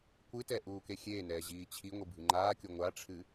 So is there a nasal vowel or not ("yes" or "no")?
no